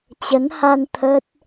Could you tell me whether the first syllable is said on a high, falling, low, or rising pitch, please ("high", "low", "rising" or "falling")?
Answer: rising